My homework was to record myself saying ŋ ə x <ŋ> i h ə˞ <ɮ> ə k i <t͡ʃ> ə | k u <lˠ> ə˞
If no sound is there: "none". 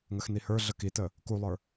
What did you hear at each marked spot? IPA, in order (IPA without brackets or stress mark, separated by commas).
n, ɮ, t, lˠ